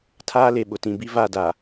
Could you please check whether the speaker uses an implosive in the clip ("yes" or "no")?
yes